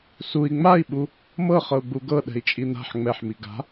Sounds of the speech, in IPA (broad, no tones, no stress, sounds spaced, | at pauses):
s u i̯ ŋ͡m a i̯ ɓ u | m ɤ χ ɤ u̯ ɡ͡b u ɡ ɤ ɗ ɛ̤ i̯ t͡ʃʼ i n̪ a̤ ħ ŋ͡m ɛ ħ m i ɡ a̤